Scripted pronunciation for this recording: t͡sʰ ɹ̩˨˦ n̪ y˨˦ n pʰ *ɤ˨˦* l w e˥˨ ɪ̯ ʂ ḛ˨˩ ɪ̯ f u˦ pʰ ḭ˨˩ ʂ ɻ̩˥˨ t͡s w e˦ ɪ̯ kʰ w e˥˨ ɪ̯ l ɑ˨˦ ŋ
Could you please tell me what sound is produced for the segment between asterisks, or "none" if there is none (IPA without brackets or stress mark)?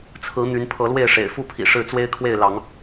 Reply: ɤ˨˦